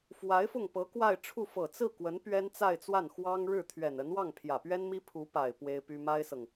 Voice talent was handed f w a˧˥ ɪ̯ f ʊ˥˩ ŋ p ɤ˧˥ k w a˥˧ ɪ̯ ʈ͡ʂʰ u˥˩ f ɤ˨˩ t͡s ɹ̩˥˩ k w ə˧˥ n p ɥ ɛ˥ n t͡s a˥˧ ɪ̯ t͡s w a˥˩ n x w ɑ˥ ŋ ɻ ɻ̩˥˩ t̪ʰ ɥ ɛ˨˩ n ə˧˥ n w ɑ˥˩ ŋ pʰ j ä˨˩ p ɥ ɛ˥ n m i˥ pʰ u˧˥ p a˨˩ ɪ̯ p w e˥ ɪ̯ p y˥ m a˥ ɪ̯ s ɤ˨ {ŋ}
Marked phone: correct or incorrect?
correct